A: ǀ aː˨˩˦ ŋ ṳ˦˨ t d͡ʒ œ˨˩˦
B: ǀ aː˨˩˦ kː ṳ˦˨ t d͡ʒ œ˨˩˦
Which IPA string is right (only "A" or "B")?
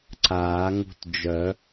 A